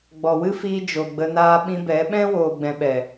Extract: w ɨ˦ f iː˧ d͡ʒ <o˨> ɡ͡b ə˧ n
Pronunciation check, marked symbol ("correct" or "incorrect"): correct